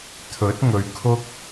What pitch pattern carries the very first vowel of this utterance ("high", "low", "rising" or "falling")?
rising